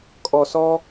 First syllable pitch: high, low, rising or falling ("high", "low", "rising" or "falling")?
low